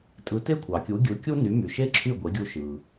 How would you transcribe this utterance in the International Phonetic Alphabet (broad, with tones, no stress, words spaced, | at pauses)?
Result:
tʼɯ˩˥te˥ kʷʰɑ˩kʲu˩˥ɡʲɯ˩˥ kʲu˥ny˩˥my˩ʃe˥ ǁʰy˥˩ɡʷe˩˥ɡʲu˧ ʃɯ˩